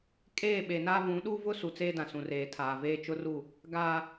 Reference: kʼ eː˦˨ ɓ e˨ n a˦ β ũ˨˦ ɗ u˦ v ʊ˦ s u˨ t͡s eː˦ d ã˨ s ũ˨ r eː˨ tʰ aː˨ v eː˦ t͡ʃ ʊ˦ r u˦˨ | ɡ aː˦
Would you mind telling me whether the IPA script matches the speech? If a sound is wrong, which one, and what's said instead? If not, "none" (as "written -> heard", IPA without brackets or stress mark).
none